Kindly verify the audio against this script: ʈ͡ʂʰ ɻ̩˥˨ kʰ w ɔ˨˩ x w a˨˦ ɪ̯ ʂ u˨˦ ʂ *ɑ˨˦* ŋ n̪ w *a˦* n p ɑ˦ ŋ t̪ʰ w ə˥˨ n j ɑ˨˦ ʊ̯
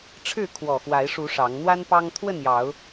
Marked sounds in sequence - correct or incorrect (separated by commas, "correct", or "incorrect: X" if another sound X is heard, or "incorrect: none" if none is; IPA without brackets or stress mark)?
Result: correct, correct